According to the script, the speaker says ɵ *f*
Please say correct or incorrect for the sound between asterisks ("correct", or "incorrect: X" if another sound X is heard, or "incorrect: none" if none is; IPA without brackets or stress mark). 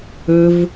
incorrect: v